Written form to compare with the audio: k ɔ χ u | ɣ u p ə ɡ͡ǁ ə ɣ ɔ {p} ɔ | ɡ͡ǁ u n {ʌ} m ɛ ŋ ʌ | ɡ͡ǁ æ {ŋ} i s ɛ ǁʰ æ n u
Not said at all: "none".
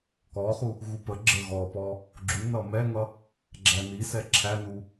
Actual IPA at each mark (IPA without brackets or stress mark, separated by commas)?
p, ʌ, n